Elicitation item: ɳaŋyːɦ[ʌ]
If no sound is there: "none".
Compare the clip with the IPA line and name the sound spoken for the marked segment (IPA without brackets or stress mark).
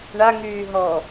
ɔ